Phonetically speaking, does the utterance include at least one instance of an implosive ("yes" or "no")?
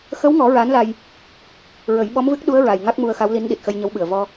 yes